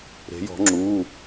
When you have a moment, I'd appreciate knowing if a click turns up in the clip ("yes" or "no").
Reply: yes